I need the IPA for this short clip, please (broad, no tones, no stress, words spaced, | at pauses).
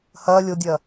hɐː lʲodʲɐː